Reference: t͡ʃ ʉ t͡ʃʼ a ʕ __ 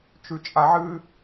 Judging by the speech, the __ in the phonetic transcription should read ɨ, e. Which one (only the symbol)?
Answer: ɨ